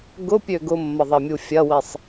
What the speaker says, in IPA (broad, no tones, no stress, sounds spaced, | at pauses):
ɡ ʊ pʲ ø ɡ ʊ mː ɐ ðˤ ɐ mʲ u fʲ ɐ w i sˤ